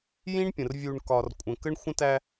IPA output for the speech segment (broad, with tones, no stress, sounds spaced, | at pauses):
j ĩ˦ ɳ pʲ ə̃˨ r vʲ u˨ ɳ k ɒ˨ r kʷʼ ə̃˨ k ə˦ ɳ xʷ ə̃˦ t æ˦